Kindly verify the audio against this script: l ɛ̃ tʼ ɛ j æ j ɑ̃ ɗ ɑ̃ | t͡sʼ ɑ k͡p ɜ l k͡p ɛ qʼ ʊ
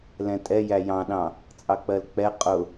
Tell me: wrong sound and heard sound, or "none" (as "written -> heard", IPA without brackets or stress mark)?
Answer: none